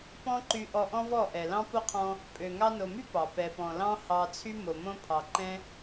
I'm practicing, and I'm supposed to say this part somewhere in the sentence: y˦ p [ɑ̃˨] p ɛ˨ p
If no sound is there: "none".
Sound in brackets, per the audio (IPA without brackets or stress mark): ɑ˨